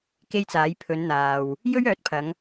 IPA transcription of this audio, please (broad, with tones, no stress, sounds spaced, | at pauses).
k e˥ j t͡s aː˨˥ j pʰ ɵ˨˧ n n̪ aː˨ w | j ɵ˥ ɥ œː˨˥ t̚ pʰ ɐ˨˧ ŋ